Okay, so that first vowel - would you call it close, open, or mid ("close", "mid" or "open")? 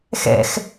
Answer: mid